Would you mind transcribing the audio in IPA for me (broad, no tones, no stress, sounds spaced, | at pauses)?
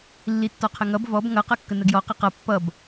lː i tː ɔ qʰ ə ŋ ʌ b v ɔ b ŋ ʌ q ʌ kː ə n ə ɡ j ɔ q ə q ʌ pː ʌ b